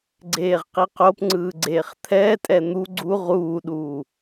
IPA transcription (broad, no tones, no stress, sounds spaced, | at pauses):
ɡ͡ǀ eː ʁ q i q o p ŋ͡ǀ ɯː ɡ͡ǀ eː χ t̪ʰ ɛː tʼ ɛ n̪ u ɡ͡ǀ u ʁ uː ɗ uː